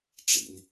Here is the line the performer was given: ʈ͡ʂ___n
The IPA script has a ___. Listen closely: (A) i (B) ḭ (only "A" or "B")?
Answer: B